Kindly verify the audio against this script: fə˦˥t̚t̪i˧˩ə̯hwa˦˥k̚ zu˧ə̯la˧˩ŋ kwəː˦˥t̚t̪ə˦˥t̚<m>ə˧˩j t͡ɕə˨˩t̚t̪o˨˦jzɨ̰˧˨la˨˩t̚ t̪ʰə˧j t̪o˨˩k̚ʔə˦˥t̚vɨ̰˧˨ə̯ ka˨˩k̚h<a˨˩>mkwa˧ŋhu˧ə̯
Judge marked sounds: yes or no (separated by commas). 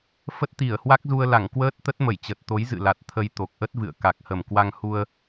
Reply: yes, no